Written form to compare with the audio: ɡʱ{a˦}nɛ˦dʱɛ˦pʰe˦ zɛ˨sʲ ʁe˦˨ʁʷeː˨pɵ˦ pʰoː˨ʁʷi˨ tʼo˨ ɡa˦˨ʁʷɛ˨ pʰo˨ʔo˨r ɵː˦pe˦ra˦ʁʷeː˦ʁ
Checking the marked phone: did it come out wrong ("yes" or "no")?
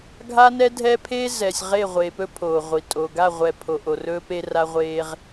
no